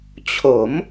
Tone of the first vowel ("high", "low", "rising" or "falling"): rising